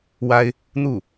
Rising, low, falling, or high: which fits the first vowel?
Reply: high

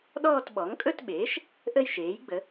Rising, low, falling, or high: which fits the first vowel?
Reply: falling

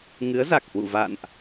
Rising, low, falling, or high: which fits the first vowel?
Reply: rising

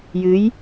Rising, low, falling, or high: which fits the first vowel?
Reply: rising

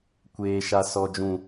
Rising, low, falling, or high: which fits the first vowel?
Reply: high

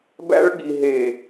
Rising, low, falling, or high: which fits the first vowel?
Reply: high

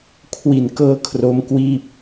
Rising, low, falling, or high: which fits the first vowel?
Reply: low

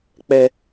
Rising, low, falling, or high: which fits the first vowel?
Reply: low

